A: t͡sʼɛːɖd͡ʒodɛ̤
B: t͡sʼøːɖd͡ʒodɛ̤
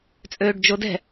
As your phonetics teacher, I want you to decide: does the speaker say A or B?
B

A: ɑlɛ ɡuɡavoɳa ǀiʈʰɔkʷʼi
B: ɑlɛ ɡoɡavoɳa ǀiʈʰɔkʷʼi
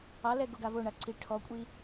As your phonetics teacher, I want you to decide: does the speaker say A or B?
B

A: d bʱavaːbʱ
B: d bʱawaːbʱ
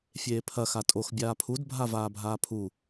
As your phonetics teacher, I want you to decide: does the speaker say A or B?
A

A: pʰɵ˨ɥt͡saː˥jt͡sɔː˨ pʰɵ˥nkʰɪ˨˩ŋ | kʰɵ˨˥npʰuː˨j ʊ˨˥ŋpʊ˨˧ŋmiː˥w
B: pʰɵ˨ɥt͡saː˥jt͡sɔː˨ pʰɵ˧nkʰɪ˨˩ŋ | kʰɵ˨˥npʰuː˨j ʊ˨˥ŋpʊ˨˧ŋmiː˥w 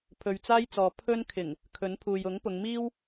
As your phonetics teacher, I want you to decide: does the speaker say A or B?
A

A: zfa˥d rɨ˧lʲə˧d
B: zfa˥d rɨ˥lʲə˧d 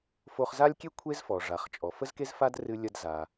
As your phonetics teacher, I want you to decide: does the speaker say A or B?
A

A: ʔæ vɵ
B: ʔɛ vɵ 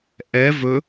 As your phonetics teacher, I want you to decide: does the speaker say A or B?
B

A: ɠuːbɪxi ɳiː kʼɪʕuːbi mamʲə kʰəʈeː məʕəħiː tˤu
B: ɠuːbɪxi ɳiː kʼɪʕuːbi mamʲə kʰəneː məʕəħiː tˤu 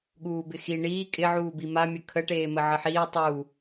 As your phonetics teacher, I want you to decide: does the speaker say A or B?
A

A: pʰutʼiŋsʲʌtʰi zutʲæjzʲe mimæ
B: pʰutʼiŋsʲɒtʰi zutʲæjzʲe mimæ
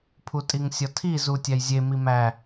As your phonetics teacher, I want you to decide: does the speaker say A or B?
B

